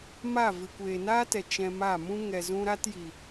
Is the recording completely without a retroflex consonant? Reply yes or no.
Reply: yes